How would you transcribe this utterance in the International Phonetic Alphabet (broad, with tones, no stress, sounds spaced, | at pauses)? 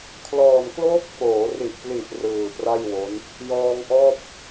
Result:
kʰ l ɔː˨˩ n k l oː˦˥ k̚ f oː˩˦ r i˨˩ ʔ p l i˨˩ ʔ r ɯː˨˩ p r a˥˩ j w o˦˥ n | j ɔː˧ ŋ ʔ ɔː˥˩ p̚